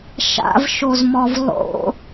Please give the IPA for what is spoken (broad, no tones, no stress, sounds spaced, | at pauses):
ʃ a̰ v ʃ o z m ɔ v lˠ o̰